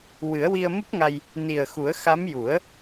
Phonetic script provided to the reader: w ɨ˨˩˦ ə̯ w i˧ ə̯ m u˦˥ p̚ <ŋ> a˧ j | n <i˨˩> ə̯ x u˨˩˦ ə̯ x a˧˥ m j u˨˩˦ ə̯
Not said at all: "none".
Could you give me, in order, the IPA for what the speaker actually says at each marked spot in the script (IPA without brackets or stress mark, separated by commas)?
ŋ, i˨˩